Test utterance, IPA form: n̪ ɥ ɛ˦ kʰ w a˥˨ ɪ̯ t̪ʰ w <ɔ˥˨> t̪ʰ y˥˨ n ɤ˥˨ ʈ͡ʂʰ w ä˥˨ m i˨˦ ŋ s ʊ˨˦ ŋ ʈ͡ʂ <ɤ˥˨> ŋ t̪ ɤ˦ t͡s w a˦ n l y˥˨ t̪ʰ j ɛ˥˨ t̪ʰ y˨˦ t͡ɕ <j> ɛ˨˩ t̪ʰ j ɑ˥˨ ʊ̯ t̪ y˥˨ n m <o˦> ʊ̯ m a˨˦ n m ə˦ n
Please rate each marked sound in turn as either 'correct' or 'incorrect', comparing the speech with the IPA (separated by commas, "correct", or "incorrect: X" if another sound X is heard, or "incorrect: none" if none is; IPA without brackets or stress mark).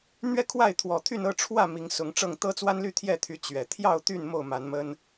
incorrect: ɔ˨˩, correct, incorrect: ɥ, incorrect: o˥˨